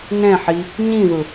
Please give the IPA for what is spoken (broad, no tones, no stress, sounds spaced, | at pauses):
n ɛ̃ ħ i | ɲ ĩ ð ʊ